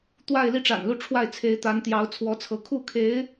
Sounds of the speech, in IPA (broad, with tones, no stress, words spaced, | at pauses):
t̪wa˥˧ɪ̯li˥˩ʈ͡ʂa̰˨˩nlu˥˧ ʈ͡ʂʰwa˥˩ɪ̯ t͡sʰe˧˥ɪ̯ t̪a˧˥n t̪jɑ˧˥ʊ̯t͡sʰwɔ˧˥ t͡sʰɤ˧˥ kʰu˥˩kʰe˧˥ɪ̯